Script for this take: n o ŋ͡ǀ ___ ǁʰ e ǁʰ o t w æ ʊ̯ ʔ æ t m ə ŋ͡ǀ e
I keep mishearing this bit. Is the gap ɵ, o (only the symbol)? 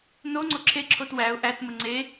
o